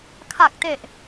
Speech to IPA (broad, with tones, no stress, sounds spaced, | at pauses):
kʰ a˨˩ k̚ t e˨˩ ʔ